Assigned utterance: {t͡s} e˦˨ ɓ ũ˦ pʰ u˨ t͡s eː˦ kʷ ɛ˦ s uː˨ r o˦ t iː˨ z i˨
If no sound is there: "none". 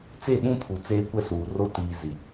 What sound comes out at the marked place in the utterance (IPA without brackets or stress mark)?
t͡s